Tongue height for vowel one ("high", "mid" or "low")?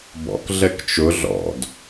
mid